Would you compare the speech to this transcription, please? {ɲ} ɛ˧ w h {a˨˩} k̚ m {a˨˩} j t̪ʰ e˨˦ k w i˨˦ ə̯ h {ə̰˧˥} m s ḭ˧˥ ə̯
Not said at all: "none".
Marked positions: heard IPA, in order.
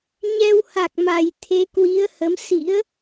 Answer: ɲ, a˨˩, a˨˩, ə˨˦

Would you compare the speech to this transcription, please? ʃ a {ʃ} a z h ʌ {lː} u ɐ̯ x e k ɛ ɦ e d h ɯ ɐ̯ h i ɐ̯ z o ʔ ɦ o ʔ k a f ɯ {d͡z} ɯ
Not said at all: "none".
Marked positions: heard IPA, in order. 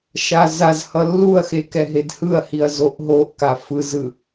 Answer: z, lː, z

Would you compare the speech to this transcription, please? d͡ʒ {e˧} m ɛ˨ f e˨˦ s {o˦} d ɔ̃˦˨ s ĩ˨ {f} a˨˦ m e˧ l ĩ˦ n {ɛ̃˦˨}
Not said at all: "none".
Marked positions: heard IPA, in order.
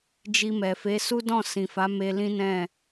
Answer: i˧, u˦, f, ɛ̃˦˨

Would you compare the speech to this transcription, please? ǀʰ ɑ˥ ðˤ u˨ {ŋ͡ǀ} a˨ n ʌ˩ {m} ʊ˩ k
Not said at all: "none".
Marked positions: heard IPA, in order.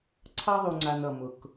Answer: ŋ͡ǀ, m

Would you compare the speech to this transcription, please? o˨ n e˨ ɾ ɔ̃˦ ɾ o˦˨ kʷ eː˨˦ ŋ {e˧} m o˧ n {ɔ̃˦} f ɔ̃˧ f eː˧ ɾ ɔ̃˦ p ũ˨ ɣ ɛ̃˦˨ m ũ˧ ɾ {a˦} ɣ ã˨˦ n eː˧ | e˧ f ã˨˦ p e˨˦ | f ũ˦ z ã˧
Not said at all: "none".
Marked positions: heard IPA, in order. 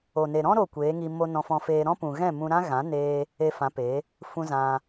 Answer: i˧, ɔ̃˧, ã˦

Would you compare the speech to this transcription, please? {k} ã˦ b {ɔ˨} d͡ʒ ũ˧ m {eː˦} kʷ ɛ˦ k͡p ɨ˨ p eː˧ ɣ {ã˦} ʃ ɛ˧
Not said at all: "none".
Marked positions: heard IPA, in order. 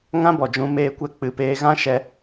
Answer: ŋ, ɔ˨, eː˦, ã˦

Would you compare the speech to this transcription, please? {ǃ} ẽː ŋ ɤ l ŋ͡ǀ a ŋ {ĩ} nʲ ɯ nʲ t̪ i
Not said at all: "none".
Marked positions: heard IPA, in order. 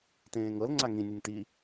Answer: t, ĩ

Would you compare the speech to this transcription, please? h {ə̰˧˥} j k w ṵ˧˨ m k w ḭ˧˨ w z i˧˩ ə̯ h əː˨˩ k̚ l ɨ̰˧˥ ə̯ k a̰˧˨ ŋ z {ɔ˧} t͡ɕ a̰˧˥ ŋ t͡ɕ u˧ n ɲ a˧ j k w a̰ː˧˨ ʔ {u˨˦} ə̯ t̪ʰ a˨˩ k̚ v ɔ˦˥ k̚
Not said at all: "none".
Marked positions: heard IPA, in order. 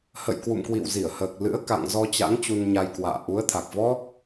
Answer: ə̰˧˨, ɔ˧, u˨˦

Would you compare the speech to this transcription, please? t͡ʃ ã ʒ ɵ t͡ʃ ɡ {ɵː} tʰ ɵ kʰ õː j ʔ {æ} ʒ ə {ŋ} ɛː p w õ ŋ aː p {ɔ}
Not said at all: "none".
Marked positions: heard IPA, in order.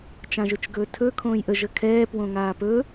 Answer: ɵː, ə, kʰ, ɵ

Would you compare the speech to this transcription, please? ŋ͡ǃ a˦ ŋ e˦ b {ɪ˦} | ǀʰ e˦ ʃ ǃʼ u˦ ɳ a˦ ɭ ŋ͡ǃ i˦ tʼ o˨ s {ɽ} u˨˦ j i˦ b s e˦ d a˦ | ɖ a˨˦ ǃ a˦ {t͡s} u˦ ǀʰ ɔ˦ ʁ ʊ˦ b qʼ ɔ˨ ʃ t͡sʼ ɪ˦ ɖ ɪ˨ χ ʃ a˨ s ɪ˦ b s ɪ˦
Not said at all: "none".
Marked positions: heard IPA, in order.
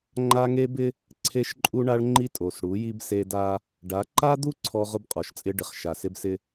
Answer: ɪ˦, ɽ, d̪

